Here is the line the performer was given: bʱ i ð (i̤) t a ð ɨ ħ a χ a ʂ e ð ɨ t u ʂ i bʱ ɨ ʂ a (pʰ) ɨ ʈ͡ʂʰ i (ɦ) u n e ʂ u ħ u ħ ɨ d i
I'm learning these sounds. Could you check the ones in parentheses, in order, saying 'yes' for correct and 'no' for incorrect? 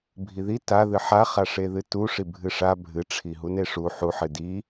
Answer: no, no, yes

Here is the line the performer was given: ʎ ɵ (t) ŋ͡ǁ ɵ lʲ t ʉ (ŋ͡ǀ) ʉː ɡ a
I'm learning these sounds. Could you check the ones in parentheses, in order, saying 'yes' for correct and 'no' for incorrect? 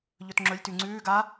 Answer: yes, yes

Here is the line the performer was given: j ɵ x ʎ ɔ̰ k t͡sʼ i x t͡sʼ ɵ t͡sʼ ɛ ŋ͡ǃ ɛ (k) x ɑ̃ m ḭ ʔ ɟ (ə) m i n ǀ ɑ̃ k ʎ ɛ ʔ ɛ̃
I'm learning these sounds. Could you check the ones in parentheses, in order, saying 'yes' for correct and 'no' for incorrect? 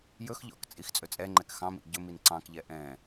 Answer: yes, no

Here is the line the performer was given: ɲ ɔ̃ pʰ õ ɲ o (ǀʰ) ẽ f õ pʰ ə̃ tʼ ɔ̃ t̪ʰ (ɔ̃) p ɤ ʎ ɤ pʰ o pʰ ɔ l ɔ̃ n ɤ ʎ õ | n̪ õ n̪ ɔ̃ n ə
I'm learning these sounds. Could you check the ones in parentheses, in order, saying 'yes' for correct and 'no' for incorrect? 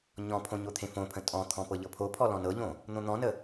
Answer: no, yes

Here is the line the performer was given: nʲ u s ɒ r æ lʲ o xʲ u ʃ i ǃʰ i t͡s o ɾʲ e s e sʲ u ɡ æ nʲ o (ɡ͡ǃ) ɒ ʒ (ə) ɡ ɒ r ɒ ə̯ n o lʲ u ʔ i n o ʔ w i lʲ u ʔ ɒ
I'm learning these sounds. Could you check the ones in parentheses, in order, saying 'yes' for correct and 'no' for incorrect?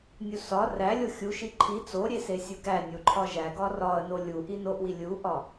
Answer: no, no

